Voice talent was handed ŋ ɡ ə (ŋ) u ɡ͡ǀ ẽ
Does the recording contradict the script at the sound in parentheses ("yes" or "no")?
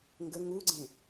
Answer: no